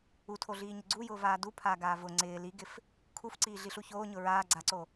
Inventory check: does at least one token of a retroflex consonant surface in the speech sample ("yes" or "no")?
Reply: no